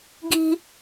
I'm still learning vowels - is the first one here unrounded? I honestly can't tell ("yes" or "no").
yes